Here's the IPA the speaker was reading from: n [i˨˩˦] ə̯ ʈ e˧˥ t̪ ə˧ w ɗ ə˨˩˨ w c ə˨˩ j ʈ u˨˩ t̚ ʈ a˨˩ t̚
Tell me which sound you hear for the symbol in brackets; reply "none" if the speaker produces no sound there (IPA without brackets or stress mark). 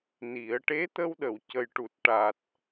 i˨˩˦